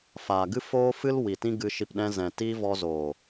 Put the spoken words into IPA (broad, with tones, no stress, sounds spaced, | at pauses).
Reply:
f aː˨ ɡ ɨ˦ f oː˦ f ɨ˦ l w i˨ t ĩ˦ ɡ ɨ˧ ʃ i˧ p ɗ ɛ̃˧ z ɛ̃˨ t iː˦ v ɔ˧ z oː˨